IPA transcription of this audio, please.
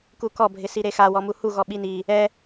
k u k ɔ bʱ ɪ s i ɾ e x a w ɔ m u h u ɣ ɔ ɓ i n i | ɛ

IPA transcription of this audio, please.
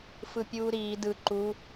f ɯ pʲ uː ɾ iː d ɯ ǃ u

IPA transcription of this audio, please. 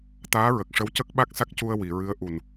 t̪ aː˧˥ ɹ ə˨˩ k̚ ʂ ə˧˥ w c ə˦˥ k̚ ɓ a˦˥ k̚ s a˦˥ k̚ c u˧ ə̯ w i˨˩˨ ɹ ɨ˧˥ ə̯ ʔ u˨˩ n

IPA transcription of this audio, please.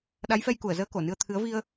ɗ a˨˦ j f ɛ˧ j k u˧˩ ə̯ z əː˧ k o˧˩ n ɨ˧ ə̯ t̪ʰ ɨ˨˦ ə̯ v i˧ ə̯

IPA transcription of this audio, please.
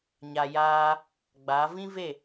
ɲ aː˧ j aː˦ | ɡ͡b aː˨˦ v ĩ˦ v e˦˨

